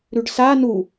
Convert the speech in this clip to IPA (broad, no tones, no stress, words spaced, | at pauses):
ɾʉɖsa nu